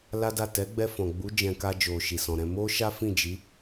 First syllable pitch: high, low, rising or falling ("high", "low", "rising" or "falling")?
high